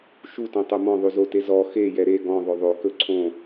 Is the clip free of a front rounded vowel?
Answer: yes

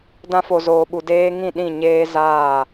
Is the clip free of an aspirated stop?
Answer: yes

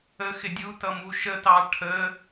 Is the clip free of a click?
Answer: yes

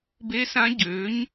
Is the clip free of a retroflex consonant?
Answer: yes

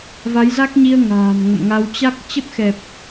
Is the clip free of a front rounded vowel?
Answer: yes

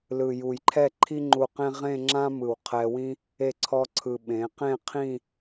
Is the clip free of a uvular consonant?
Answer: no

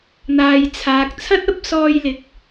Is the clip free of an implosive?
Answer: yes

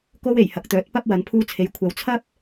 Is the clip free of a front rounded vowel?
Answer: no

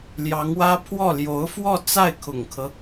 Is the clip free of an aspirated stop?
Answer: no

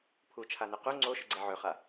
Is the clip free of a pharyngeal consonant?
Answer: no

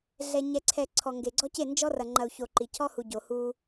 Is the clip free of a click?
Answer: no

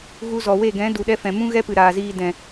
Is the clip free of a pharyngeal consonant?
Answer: yes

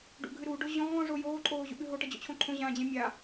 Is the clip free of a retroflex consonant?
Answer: no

